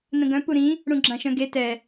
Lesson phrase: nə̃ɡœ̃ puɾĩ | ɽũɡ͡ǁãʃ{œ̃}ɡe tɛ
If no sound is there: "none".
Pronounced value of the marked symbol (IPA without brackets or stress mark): œ̃